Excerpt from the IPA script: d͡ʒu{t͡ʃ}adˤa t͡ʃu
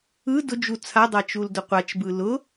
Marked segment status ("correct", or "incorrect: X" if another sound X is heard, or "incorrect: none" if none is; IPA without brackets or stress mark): incorrect: t͡sʰ